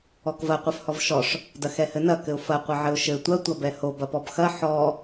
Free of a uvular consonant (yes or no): no